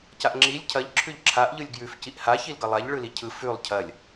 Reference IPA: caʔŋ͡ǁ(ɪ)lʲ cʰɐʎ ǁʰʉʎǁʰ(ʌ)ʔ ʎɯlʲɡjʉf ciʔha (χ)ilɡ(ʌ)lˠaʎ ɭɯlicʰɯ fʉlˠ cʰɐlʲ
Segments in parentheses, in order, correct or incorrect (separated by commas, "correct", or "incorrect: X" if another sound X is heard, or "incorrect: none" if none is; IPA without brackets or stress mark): incorrect: i, incorrect: a, incorrect: ç, correct